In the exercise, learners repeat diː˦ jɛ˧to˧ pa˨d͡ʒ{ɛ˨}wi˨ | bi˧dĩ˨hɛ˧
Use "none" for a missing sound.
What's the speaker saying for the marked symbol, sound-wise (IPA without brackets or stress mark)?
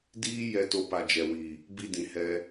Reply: ɛ˨